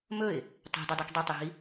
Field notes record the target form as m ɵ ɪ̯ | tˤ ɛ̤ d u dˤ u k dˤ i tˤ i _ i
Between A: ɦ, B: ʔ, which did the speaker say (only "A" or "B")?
A